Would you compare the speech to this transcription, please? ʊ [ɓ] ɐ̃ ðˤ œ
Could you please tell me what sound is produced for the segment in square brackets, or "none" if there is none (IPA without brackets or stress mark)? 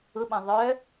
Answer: ɓ